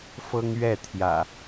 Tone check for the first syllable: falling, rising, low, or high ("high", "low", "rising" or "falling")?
high